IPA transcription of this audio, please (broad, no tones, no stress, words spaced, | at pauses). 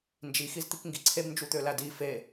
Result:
nd͡ʒixizt̪ikŋɡi ǀʰebnd͡ʒut̪ølæ di fe